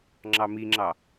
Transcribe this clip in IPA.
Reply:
ŋ͡ǁ ɑ m i ŋ͡ǁ ɑ

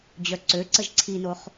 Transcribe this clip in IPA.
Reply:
d͡ʑ œ ǀ ø ǀ ə ʒ ǀʰ i n o χ

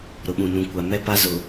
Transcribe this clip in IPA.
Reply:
ɾ ʊ˨ ɓ ũ˨ n ũ˨ kʷ a˨ m ɛ˦ p a˦ z ʊ˨

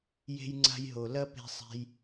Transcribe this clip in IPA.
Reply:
j e̤˦ j ŋ͡ǀ a̤˦ j ɦ o˨ l ɐ˦ p e̤˧ sˤ e̤˧ j

